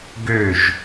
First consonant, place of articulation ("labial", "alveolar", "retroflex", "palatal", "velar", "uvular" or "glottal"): velar